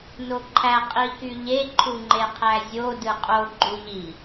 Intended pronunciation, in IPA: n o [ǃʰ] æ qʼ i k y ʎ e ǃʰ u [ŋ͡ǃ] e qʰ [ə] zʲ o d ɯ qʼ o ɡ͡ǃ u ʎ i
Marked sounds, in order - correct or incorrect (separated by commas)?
correct, correct, incorrect